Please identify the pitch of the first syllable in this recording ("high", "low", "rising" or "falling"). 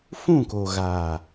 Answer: falling